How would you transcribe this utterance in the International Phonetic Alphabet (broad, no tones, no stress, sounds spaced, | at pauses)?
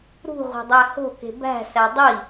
ɾ ṳ ʁʷ e̤ dˤ æ h o̤ k e̤ b æ̤ s æ dˤ i